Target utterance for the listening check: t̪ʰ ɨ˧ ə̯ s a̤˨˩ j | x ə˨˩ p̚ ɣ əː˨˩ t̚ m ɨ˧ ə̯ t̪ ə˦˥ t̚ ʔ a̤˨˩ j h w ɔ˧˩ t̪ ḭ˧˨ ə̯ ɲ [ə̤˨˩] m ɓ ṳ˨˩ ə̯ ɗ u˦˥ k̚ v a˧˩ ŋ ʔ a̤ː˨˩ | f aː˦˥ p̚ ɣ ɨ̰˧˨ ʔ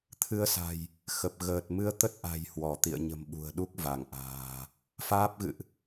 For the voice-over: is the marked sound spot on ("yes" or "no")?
yes